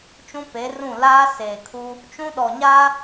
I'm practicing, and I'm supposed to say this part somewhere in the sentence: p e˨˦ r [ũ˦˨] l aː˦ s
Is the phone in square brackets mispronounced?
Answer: no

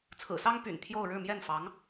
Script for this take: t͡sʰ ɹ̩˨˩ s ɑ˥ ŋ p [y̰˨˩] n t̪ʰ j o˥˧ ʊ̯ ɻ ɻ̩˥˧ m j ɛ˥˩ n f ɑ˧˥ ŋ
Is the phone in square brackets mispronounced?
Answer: no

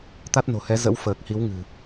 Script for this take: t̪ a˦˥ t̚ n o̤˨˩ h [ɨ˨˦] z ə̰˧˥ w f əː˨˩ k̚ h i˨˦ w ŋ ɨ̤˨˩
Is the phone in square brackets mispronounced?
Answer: yes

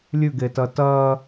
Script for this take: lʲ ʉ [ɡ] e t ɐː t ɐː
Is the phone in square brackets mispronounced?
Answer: no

